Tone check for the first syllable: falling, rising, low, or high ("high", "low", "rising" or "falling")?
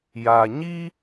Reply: low